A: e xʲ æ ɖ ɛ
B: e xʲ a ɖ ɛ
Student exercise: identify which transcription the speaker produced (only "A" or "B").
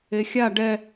B